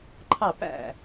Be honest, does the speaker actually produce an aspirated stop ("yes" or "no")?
yes